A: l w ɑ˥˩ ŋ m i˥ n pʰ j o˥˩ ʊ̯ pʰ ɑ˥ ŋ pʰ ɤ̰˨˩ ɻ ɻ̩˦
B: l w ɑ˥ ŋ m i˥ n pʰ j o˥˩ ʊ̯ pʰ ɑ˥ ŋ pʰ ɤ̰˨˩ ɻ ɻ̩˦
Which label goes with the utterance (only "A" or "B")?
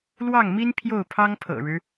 A